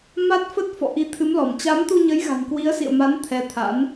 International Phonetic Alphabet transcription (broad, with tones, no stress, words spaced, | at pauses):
ma˦˥t̚fə˦˥t̚ fɔ̰˧˨ʔi˨˦t̪ʰɨ˨˦mlɔ˧˩m t͡ɕa˨˦mt̪u˧ɲə˨˦jɣa̤˨˩n kwi˨˦ə̯sḭ˧˨ə̯ma˨˦n t̪ʰɛ˨˦t̪ʰa̰˧˥n